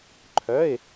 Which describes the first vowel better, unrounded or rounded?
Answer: rounded